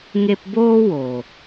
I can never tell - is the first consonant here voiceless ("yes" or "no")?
no